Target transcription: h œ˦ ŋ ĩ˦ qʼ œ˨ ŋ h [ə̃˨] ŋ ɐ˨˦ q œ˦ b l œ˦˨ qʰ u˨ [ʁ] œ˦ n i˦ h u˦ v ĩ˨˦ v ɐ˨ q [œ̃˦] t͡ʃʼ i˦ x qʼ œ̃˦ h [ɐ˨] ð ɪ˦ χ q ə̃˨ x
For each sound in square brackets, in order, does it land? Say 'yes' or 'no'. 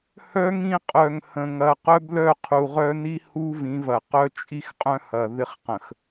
yes, yes, no, yes

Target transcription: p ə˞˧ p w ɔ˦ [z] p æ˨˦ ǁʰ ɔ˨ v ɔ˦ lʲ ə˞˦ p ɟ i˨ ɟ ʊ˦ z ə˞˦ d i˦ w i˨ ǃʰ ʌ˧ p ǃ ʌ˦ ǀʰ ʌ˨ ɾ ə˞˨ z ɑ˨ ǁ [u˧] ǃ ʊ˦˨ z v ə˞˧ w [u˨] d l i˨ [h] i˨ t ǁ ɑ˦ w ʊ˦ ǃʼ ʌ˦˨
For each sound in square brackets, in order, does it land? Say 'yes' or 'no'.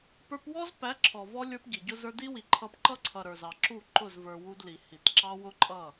yes, no, no, yes

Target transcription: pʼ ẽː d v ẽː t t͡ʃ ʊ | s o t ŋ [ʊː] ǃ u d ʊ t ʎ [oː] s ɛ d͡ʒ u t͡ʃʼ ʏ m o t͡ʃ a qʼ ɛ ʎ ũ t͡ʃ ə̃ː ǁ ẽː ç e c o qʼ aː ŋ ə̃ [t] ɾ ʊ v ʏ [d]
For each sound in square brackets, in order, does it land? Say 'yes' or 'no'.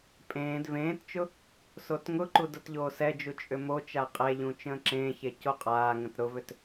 no, yes, yes, no

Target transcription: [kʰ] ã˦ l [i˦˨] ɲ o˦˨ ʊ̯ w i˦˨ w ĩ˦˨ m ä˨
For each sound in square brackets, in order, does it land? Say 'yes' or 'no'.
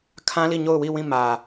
yes, yes

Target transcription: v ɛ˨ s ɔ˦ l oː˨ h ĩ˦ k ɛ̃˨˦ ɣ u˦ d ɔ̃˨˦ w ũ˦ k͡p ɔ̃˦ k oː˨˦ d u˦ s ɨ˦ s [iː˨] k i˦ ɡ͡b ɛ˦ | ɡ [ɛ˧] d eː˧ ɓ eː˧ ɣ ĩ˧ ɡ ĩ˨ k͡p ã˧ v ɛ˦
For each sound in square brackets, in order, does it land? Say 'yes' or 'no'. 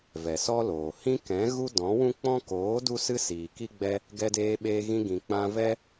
yes, yes

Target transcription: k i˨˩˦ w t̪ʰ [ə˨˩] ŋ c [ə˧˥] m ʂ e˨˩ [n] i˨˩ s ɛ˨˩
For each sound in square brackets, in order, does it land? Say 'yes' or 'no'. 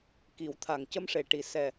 no, no, no

